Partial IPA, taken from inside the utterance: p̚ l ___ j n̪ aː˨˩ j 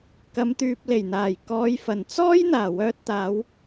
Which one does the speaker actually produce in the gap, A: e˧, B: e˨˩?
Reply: B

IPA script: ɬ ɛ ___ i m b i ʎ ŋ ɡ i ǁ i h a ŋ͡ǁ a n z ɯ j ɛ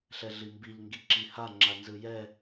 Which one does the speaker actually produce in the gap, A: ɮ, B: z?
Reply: A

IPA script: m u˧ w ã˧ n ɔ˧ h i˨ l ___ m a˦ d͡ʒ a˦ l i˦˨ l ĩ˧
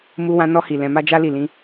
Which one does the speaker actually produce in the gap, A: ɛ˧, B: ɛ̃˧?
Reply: B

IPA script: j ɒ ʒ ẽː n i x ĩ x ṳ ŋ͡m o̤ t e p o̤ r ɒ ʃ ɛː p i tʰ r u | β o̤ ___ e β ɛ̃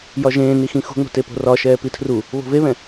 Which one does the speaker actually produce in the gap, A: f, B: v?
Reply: B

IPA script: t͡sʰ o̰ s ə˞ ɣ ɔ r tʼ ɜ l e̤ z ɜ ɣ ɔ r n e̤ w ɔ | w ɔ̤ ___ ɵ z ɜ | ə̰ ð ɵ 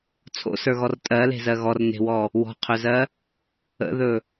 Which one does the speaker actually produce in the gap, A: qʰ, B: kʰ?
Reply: A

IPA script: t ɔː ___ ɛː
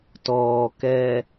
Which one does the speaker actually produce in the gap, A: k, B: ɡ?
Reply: A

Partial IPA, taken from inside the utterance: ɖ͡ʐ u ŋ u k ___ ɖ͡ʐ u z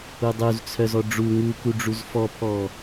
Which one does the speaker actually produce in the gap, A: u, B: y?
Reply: A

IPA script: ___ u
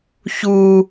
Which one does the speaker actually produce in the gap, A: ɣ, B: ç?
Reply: B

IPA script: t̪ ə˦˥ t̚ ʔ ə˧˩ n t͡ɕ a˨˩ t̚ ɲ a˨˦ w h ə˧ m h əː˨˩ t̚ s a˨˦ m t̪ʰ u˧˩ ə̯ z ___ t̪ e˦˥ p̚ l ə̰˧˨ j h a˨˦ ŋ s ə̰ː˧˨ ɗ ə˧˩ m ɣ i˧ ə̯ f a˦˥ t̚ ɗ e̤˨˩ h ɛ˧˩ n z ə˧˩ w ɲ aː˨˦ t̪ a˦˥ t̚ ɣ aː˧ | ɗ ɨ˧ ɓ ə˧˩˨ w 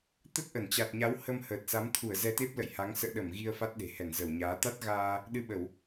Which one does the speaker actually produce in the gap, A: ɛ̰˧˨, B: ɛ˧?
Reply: B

